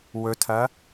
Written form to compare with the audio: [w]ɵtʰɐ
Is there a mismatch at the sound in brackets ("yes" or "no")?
no